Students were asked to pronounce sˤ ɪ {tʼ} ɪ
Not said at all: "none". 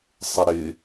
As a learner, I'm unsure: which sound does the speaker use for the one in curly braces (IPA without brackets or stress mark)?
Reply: ɾ